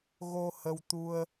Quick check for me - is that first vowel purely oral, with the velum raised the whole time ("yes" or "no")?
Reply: yes